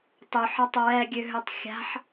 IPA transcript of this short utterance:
tˤøħɑtˤ ɹɛɡʲøɦøtˤ xʲa̤ħ

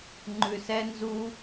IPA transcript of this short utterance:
ŋ͡ǃʉsɛ nzu

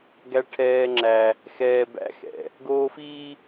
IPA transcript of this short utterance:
ɡæ˦ʈʰɛː˦ŋ͡ǁæ˦ | xɛː˦bæ̰˦ xɛ̰˨ | ɡoː˦fiː˦

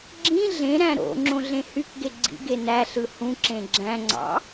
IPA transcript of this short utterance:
ɡ͡ǁĩ ɮẽ ɾæ̃ɾo̰ ŋ͡ǁõɮẽhykɡe ɡ͡ǀḭɡe næɬɯ hũǁẽ ɡ͡ǁæ̃ŋ͡ǀɑ̰

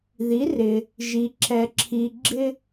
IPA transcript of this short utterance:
ði˩˥rɪ˩ | ʒi˩ ǁɛ˩ ǁʰi˩ ɡ͡ǁɪ˦

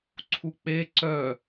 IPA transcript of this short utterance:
ǀʰuk͡pe ǀœ

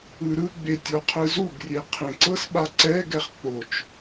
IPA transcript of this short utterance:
ɯɾɯɡ͡be tʲɔqʰɯzuɡrʲe qʰẽǀɤsɓa ǀɛɡɛχ k͡pot͡ʃ

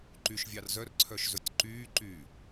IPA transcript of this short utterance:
ǃyʃvʲɑr zœrǀʰœʃzɵtʲ ǃyːǃyː

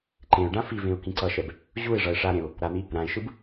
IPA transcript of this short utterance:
ǃẽʊ̯ɖã fivẽʊ̯ kĩǀʌʃɛb | ʑuɪ̯ʐʌɪ̯ ʂaɾẽʊ̯ | ɾan̪i | ɾãɪ̯ʃɯb

